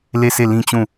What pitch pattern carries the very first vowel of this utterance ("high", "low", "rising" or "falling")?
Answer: falling